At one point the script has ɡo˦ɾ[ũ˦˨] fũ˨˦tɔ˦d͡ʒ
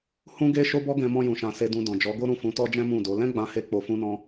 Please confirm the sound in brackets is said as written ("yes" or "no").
yes